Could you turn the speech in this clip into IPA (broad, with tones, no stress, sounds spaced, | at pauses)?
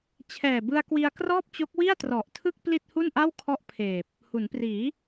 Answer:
t͡ɕʰ ɛː˨˩ b ɯ˧ a̯ k w i˧ a̯ k r ɔː˥˩ p̚ t͡ɕ o˦˥ k̚ w i˥˩ a̯ t r ɔ˨˩ ʔ tʰ ɯ˥˩ k̚ p l i˥˩ t̚ h u˥˩ n ʔ a˥˩ w kʰ ɔ˥˩ ʔ pʰ eː˨˩ p̚ | h u˩˦ n p r iː˩˦